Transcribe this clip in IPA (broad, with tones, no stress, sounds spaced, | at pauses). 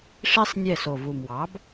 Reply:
ʂ i˥ sˤ nʲ ɛ˥˩ s o˨˩ v u˨˩ m w ɑ˩˥ b